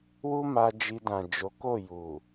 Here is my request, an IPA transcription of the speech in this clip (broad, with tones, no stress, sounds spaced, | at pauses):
w u˦ m a˧ d͡ʒ i˧ d ã˨ d͡ʒ o˨˦ k o˦˨ j u˨